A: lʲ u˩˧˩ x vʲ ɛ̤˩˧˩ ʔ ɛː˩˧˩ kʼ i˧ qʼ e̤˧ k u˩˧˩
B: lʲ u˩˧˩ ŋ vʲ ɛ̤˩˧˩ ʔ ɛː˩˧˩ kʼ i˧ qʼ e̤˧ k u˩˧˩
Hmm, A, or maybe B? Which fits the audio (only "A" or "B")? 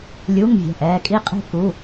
B